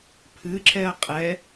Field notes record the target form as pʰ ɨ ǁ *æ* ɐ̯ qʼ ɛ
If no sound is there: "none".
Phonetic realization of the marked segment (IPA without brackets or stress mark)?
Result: ɛ